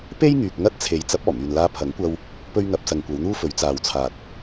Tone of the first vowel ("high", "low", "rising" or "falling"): high